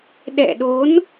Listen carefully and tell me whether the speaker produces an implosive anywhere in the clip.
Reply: yes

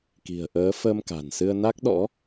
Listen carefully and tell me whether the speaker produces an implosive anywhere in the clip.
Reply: yes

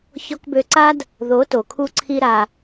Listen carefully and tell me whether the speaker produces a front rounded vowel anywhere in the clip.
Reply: yes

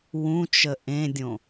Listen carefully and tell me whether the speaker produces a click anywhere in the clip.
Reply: no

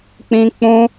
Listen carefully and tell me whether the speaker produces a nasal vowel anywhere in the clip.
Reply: yes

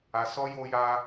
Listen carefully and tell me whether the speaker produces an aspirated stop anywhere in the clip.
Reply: no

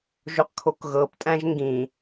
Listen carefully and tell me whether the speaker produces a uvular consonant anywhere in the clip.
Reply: yes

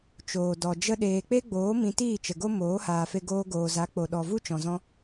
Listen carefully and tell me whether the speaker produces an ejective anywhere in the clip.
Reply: no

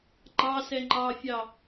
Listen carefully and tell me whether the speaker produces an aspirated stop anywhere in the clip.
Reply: no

